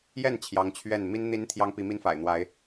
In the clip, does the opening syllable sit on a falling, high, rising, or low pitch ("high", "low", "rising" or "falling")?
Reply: falling